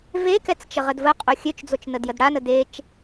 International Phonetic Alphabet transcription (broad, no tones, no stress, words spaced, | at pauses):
vekɛt͡st͡ʃə ʁədvə qʼoxʲøt͡ʃd͡zot͡ʃ nədjədɽanə det͡ʃ